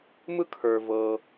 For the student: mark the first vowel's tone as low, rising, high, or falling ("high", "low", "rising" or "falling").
high